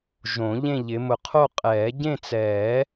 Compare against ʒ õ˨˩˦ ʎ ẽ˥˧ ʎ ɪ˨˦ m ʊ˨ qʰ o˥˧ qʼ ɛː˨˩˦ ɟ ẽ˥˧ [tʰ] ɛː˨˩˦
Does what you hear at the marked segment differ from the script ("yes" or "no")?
yes